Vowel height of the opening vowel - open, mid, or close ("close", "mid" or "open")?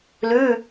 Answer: close